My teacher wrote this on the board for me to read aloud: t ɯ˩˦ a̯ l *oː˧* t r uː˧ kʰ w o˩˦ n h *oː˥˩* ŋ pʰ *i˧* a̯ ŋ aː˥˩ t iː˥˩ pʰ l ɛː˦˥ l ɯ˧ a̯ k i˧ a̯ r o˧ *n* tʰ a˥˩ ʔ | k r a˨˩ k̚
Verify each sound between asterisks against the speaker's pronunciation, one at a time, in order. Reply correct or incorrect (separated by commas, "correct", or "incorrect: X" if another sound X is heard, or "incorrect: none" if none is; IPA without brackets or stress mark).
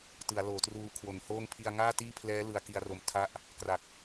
incorrect: oː˩˦, correct, correct, incorrect: m